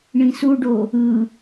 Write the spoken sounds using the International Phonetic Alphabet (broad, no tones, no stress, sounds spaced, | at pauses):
ɳ ĩ s u ɖ o | ɯ